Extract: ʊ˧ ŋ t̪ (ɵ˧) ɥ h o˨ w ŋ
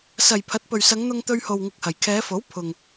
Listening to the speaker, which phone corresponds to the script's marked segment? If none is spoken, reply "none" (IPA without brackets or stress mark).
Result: ɵ˧